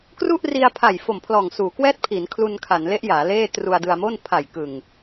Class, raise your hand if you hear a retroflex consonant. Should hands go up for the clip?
no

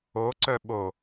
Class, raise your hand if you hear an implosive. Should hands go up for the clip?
yes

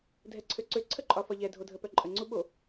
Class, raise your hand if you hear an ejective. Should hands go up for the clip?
yes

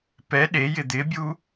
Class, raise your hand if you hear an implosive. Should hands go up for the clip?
yes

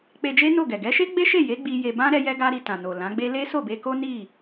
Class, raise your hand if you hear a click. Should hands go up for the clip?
no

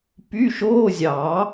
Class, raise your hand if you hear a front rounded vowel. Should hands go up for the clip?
yes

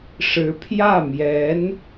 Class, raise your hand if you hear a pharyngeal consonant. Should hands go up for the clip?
no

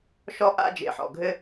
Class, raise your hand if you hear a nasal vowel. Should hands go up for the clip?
no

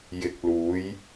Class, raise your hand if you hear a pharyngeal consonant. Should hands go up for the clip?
no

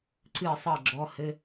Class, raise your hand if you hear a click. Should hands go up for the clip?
yes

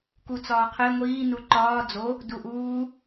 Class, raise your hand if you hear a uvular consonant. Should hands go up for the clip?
yes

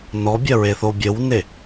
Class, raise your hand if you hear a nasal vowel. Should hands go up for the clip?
no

